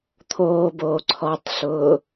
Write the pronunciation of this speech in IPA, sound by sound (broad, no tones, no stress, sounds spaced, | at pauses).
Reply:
t̪ʰ oː b oː ǀʰ ɔ tˤ ɬ ʊː